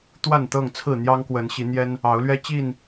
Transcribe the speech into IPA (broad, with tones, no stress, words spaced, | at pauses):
t̪wa˥˨nt̪ɤ˥˨ŋt͡sʰɹ̩˥˨ n̪jɑ˦ŋkwə˨˦n ɕi˨˦n̪jɛ˦n | ɑ˨˦ʊ̯lɥɛ˦ t͡ɕi˥˨n